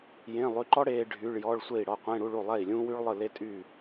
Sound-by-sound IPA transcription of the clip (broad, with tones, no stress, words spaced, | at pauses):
jẽ˧˥˧ lˠy˧˥˧ ǃɔ˥ ɽeː˥ɖʱy˧˥˧ɭ jɔː˧˥˧ɭsʷe˥˩i̯ ɽɔ˥˩qʷẽ˧˥˧ ɽu˧˥˧ɭu˥˩lˠɛ˥˩i̯lʲũː˥ wy˥ɭlˠɯ˥˩ le˥tʼyː˥˩